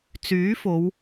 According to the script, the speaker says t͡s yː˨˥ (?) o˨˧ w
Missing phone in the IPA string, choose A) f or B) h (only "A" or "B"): A